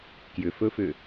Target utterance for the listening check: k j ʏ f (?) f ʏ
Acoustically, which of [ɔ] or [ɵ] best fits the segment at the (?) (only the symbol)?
ɵ